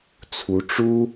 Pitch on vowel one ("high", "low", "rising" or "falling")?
rising